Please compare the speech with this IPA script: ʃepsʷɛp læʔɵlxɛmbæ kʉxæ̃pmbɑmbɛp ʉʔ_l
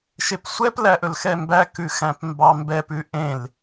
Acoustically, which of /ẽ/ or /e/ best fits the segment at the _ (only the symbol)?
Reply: ẽ